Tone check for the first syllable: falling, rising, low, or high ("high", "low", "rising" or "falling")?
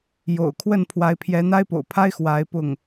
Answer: low